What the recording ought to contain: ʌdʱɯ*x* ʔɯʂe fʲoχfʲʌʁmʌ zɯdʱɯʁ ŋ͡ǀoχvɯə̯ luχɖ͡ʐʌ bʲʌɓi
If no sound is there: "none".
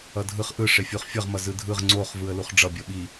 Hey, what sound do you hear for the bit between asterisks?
χ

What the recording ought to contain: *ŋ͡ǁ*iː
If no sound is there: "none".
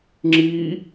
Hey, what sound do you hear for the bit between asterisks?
ŋ͡ǁ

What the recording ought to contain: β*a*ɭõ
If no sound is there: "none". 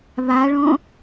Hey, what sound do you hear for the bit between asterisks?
a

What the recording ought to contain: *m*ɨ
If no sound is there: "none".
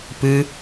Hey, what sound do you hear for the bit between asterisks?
p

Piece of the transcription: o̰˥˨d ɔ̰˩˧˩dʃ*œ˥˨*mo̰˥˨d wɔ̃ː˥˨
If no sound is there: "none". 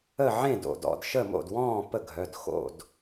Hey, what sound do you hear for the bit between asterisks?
ə˥˨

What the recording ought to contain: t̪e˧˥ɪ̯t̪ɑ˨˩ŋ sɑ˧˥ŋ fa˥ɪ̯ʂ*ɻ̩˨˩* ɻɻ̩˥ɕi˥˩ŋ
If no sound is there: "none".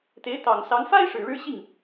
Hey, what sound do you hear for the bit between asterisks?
ɻ̩˨˩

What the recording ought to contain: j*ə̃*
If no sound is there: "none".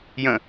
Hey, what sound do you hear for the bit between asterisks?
ə̃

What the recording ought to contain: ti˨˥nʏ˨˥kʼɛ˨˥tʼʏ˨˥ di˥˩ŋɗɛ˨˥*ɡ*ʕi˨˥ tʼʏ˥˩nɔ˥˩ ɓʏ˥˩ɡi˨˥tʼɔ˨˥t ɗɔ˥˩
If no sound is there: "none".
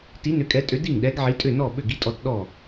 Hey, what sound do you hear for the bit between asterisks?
ɡ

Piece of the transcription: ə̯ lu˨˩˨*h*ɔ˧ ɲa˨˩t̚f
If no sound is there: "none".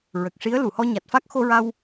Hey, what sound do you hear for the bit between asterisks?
h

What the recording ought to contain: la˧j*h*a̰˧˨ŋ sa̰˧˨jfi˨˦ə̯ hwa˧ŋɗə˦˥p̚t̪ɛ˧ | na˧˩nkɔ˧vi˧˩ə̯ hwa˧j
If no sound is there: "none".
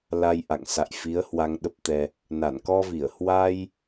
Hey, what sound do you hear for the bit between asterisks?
ʔ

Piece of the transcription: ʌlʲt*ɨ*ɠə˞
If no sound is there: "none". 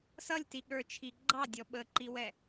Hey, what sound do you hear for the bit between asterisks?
i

